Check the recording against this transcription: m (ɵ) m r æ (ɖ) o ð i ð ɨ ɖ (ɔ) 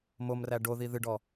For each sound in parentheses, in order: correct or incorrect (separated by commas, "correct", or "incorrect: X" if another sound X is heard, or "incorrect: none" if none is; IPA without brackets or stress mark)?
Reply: incorrect: o, correct, correct